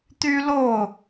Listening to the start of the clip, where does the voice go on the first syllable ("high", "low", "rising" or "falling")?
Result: high